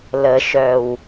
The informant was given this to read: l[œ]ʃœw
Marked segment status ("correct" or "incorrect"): incorrect